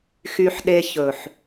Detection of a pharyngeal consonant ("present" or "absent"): present